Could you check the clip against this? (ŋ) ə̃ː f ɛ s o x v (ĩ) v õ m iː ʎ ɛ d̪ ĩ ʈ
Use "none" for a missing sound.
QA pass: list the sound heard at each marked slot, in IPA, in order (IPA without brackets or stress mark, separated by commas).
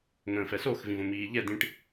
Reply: ŋ, ĩ